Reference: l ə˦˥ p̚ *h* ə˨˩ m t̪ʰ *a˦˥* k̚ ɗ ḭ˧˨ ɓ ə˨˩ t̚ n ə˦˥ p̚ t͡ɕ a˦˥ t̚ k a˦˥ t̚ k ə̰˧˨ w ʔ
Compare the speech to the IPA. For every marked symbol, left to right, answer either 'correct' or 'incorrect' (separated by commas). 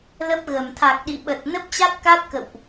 incorrect, incorrect